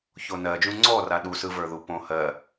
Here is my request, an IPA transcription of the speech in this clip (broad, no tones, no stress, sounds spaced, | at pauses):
ç o n ɜ d͡ʒ ũ ŋ͡ǀ ɔ r a ɗ u s ɯ v ə˞ ð u p õ h ɜ